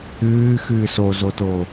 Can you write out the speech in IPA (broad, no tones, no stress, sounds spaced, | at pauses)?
ɨː x ɨː s o z o t o